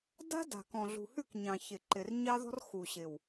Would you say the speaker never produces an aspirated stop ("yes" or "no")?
yes